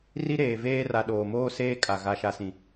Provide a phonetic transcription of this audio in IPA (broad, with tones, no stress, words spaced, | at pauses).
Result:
ri˦ɾeː˨veː˦ ra˨ɗoː˨ moː˦ seː˦kʼa˨ ɣa˨ʃa˨sĩ˨